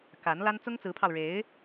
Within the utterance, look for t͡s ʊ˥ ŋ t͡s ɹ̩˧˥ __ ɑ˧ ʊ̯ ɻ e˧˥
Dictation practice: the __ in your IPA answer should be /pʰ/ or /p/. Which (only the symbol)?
pʰ